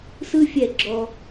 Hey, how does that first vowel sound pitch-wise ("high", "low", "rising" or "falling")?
high